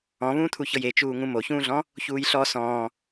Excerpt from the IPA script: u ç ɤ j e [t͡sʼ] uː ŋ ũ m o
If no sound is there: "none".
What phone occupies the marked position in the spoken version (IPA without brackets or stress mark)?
t͡ʃ